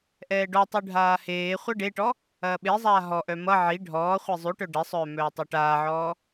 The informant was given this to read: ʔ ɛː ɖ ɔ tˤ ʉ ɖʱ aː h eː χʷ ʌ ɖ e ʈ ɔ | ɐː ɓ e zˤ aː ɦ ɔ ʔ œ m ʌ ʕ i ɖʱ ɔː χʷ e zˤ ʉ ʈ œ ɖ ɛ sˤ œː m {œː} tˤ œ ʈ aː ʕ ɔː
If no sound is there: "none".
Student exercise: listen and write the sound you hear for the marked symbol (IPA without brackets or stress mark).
œː